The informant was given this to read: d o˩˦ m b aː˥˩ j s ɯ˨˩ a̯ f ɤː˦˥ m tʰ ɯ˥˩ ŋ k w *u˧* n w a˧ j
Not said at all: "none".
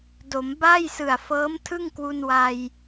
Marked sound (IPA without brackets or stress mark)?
u˧